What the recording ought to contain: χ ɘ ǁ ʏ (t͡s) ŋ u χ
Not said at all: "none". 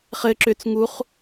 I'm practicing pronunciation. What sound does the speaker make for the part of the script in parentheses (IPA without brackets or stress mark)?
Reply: t͡s